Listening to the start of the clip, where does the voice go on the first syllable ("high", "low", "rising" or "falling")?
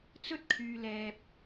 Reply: high